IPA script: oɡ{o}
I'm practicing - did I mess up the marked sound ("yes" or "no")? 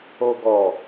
yes